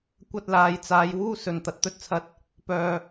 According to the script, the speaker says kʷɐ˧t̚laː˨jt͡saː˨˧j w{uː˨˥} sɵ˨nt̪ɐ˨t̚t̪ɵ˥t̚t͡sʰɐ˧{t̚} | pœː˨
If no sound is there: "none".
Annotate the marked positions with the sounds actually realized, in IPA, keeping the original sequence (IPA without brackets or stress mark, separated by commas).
uː˥, t̚